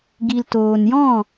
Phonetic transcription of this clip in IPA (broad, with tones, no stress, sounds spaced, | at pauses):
ɡ i˨ l t oː˨ n j ɔ̃˦˨